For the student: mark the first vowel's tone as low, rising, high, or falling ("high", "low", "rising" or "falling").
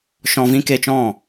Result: low